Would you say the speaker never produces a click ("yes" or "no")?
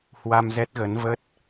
yes